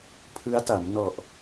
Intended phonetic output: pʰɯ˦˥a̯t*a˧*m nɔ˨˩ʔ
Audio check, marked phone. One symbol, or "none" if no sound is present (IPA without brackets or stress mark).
a˩˦